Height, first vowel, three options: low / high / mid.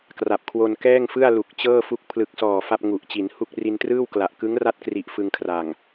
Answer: low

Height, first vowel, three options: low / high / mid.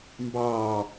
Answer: low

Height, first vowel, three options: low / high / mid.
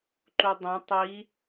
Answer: high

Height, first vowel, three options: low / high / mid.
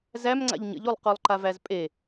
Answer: low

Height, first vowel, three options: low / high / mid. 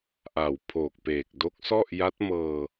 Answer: low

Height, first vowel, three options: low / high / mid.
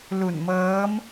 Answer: high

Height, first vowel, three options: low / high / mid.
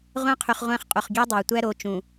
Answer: low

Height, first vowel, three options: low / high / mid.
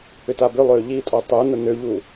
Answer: high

